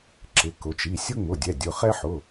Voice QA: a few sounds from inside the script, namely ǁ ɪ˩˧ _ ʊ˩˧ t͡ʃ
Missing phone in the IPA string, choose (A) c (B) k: B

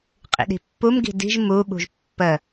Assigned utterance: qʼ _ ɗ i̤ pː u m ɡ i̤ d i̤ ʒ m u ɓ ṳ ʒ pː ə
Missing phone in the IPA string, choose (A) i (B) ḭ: B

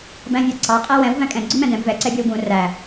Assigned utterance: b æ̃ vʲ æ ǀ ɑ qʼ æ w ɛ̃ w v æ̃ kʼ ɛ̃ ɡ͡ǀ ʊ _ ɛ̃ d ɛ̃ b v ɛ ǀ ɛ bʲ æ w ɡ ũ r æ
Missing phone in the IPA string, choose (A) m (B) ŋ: A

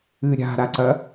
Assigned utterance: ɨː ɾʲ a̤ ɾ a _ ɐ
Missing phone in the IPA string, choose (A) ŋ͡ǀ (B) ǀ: B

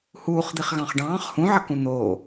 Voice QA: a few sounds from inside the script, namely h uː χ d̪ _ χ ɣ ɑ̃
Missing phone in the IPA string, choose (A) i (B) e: A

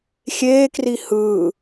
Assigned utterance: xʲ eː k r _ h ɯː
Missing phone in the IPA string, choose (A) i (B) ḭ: A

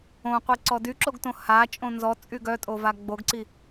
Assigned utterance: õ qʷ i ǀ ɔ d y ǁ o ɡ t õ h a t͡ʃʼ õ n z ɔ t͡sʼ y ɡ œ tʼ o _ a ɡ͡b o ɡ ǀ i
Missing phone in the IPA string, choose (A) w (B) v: B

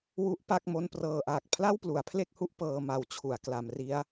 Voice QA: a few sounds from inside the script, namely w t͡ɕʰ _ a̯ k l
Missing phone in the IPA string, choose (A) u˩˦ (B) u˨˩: A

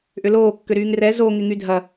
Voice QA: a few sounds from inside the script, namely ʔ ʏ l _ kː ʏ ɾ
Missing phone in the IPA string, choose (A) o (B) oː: B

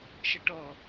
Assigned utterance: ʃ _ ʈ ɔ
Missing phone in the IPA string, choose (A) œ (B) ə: B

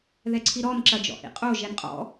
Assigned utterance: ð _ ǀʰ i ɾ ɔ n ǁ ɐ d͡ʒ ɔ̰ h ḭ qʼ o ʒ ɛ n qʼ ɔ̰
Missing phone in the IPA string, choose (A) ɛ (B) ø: A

